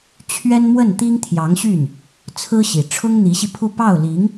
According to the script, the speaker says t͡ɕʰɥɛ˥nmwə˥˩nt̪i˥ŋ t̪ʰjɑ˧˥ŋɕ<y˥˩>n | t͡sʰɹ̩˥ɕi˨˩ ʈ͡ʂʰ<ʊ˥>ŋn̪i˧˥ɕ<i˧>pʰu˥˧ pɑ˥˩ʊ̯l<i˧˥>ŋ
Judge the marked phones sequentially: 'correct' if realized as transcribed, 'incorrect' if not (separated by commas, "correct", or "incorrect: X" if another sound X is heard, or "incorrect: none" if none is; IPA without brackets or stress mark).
correct, correct, correct, correct